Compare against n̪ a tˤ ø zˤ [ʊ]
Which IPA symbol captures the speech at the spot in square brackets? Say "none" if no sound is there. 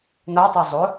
ʊ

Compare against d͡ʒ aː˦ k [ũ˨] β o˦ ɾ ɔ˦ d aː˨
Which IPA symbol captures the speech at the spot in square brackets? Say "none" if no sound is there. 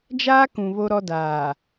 ũ˨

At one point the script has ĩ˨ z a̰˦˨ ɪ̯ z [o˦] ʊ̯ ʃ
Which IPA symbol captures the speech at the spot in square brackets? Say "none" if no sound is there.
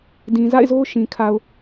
o˦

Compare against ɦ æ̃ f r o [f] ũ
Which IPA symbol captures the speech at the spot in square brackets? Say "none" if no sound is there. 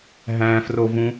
v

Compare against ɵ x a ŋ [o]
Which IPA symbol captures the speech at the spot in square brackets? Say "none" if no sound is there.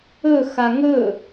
ɵ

